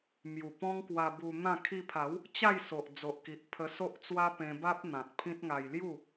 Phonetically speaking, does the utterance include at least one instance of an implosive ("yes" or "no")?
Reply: no